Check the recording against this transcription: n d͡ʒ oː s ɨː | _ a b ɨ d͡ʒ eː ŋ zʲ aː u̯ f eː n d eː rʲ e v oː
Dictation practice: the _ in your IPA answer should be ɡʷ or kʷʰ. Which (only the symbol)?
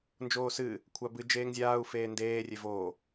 kʷʰ